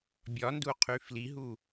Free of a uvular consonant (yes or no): no